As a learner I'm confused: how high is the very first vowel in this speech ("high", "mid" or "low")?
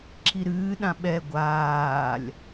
high